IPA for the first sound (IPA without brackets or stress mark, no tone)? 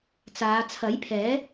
t͡s